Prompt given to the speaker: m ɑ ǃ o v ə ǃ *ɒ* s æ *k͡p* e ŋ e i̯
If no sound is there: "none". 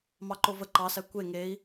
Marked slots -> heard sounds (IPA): ɑ, kʷ

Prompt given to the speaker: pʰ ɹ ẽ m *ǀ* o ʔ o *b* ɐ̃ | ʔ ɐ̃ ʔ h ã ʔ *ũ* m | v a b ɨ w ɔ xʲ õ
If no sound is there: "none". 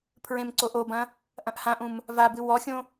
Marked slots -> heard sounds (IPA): ǀ, b, ũ

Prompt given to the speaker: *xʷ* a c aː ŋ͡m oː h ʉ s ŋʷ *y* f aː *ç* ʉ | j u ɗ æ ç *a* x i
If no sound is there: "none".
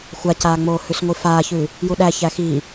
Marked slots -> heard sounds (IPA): xʷ, i, ç, æ

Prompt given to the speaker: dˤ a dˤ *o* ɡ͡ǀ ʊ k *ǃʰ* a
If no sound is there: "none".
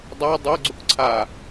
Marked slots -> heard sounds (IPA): o, ǀʰ

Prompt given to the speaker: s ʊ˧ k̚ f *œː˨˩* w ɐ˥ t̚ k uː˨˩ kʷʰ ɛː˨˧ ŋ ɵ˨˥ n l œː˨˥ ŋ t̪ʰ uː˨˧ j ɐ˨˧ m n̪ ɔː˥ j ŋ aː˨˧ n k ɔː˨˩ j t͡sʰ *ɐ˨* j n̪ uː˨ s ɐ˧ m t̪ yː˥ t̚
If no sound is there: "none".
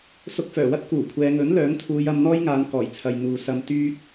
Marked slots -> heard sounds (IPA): œː˨˩, ɐ˨

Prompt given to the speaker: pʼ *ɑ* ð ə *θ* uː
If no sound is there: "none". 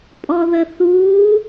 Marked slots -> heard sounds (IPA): ɔ, θ

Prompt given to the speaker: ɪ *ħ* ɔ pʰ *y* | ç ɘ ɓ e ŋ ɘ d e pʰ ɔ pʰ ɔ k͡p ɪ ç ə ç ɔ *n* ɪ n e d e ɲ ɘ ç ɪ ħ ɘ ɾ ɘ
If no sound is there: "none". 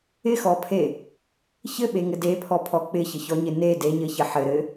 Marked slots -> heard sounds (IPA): x, e, ɲ

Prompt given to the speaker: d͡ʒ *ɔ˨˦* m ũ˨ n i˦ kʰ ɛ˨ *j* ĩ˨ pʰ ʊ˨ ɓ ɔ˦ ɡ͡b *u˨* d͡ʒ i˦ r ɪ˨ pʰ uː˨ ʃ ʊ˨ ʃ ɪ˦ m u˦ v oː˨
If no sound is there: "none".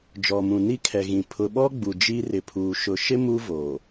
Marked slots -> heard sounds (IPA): ɔ˨, ɣ, u˨

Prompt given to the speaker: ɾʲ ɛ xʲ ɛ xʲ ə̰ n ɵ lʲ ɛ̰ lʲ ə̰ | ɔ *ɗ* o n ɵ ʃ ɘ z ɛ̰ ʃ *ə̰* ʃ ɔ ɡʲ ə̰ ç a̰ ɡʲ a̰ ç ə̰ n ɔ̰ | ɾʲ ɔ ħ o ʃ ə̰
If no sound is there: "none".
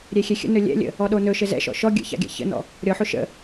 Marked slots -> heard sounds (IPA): ɗ, ɔ̰

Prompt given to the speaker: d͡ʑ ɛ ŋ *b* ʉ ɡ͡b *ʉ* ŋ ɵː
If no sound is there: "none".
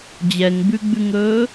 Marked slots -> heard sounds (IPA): b, ʉ

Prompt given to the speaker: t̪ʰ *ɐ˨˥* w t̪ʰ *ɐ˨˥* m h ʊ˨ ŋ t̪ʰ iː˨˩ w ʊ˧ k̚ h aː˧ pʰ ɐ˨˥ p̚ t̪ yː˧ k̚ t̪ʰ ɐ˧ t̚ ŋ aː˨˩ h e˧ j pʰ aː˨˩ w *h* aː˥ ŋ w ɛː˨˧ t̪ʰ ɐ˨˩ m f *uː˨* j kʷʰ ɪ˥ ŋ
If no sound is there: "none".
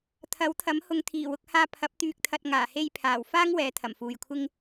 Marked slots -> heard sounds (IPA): ɐ˨˥, ɐ˨˥, f, uː˨

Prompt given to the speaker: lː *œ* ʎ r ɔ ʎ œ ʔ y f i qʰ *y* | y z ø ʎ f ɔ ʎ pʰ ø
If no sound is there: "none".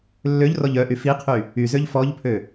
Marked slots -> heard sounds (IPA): ø, y

